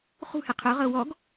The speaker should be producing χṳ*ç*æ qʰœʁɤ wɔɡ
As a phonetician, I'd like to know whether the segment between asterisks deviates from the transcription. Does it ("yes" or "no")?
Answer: yes